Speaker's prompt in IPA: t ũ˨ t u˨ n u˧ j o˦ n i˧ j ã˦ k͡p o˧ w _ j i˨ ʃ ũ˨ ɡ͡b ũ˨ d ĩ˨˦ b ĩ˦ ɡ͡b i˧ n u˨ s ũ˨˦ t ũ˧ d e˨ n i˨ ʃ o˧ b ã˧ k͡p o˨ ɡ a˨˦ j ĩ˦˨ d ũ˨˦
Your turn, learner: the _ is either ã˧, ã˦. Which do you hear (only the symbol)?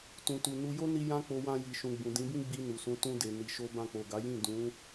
ã˧